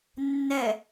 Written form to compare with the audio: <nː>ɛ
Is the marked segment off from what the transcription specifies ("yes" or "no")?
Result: no